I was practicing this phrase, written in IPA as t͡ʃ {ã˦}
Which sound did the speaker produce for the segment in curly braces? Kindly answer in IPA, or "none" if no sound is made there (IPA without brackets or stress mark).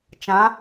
ã˨˦